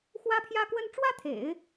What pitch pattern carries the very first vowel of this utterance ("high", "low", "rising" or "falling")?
high